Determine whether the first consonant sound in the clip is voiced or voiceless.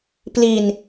voiceless